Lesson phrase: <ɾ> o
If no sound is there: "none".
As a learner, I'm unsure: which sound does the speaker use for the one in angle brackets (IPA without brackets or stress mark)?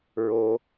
ɹ